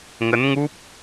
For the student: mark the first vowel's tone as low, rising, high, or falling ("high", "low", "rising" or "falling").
rising